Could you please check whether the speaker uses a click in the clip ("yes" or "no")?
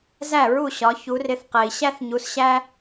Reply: no